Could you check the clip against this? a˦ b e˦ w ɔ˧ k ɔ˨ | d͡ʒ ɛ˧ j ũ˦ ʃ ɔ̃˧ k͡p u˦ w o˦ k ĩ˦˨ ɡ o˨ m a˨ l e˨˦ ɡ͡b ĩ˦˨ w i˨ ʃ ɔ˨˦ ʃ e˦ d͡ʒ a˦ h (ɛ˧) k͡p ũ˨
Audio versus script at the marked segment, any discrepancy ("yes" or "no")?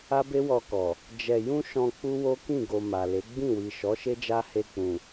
yes